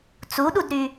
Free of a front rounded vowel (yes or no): no